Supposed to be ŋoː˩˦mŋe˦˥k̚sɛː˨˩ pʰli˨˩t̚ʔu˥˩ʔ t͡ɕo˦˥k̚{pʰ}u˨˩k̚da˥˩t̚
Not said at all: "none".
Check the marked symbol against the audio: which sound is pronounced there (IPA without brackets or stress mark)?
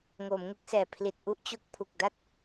pʰ